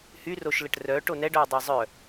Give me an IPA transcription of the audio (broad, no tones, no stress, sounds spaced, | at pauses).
h y r o ʃ l ə ʈ r œ ʈ o n ɛ ɖ œ ɐ̯ dˤ ɛ zˤ œ